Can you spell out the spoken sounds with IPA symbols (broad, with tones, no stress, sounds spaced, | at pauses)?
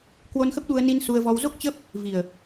k w o˧ n x ə˦˥ p̚ ɗ u˧ ə̯ n i˧ n s u˧ ə̯ v ɔ˧ w z o˦˥ k̚ t͡ɕ ə˦˥ p̚ | v i˨˩ ə̯